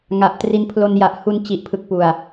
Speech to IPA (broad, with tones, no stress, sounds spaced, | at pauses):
ŋ a˨˩ ʔ t r i˦˥ n pʰ l o˧ n j a˨˩ ʔ h u˧ n t͡ɕ i˨˩ ʔ pʰ ɯ˨˩ k̚ p u˨˩ a̯